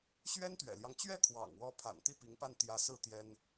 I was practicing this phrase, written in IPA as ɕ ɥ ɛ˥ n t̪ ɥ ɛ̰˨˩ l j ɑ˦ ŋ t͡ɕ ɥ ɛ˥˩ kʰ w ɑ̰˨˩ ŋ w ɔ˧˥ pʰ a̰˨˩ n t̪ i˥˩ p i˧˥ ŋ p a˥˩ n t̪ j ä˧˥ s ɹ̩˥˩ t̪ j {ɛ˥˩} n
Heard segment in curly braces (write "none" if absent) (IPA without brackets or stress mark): ɛ˥